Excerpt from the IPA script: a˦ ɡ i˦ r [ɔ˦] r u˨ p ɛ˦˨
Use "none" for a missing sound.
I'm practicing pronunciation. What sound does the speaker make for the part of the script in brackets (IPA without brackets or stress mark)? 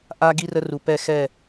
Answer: ə˦